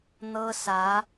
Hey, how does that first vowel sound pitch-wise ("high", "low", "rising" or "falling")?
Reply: high